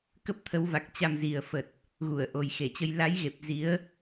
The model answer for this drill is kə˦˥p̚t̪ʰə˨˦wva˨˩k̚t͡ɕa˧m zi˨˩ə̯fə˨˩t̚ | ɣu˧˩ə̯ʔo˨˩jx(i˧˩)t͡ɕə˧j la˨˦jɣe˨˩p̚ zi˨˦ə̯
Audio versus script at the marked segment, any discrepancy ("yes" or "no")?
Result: yes